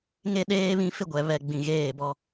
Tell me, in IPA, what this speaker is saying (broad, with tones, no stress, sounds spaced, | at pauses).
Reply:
ŋ e˦ ɗ eː˦ β ĩ˦ f ɪ˦ ɡʷ ɛ˨ β ɛ˨ ɡ͡b ĩ˨ ɣ eː˦˨ b ɔ˦